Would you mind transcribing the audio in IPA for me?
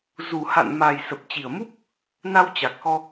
z u˨˩ h a̰˧˨ n m a˨˩ j s ə˨˩ p̚ t͡ɕ i˨˩ ə̯ m u˦˥ p̚ | n a˧ w t͡ɕ a˨˩ k̚ x ɔ˧

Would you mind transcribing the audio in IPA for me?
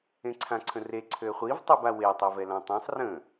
ẽ ǀʰ ã ǀʰ ə̃ r e ǀʰ ø χʷ i v tˤ i b a w e tˤ i v ɛ l ã tˤ ẽ sˤ r ə̃

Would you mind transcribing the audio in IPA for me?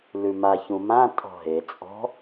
l ʉ m a ç ũ m ã tʼ ɔ̤ ɦ e t͡sʼ ɔ̤

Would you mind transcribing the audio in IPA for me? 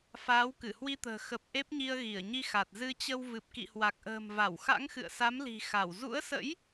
f aː˨˦ w k ɨ˧˩ h w i˧ t̪ ə̤ː˨˩ x ə˨˩ p̚ ʔ e˦˥ p̚ ɲ i˧ ə̯ ɣ i˧˩ ə̯ ɲ i˧ x a˨˩ t̚ z ɨ˧ t͡ɕ ə˧ w v ɨ˨˩ p̚ k ḭ˧˨ h w a˨˩ k̚ ʔ ə̤ː˨˩ m v a˧˩ w x a̰˧˥ ŋ x ɨ̰˧˨ ə̯ s a˨˦ m l i̤˨˩ x a˧˩ w z ṵ˧˥ ə̯ s ə̰˧˥ j

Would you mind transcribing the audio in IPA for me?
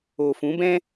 o˨ f ũ˨˦ b ɛ̃˦

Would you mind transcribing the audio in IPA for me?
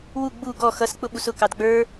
w u ɡ͡b u ɡ ɔ x ʌ s k͡p ʊ ɓ u s ʊ k ɑ d ɡ͡b ə˞

